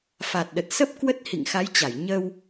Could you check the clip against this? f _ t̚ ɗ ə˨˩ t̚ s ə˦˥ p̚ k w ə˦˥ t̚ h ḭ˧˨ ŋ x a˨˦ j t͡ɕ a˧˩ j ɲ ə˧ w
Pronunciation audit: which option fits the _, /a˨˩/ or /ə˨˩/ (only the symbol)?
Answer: a˨˩